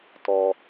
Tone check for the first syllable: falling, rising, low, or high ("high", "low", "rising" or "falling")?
high